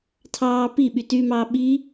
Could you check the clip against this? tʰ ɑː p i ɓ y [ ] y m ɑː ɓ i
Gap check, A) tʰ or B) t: B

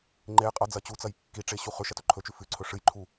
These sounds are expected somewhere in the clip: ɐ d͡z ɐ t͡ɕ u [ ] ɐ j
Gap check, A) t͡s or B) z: A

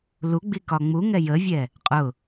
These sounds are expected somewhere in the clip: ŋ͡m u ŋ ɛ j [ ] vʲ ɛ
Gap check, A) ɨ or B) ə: B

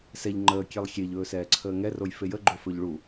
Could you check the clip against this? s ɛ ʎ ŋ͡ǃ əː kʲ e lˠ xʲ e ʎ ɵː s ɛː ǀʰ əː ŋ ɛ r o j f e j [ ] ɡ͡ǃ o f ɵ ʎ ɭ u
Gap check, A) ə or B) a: A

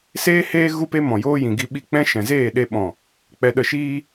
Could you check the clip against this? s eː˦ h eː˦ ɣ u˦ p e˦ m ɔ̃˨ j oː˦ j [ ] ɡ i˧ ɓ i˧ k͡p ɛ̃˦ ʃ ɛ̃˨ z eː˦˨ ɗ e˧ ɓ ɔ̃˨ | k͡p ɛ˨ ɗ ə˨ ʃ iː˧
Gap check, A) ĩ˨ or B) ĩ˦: A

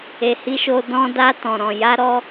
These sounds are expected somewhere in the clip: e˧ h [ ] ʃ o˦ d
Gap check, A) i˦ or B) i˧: A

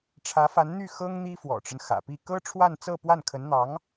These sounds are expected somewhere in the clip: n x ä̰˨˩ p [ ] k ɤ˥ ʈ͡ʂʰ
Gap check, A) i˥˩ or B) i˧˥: A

